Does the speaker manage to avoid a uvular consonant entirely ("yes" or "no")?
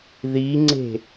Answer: yes